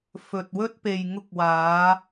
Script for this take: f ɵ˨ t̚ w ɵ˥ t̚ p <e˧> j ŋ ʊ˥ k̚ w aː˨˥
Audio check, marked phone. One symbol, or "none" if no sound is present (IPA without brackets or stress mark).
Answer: e˨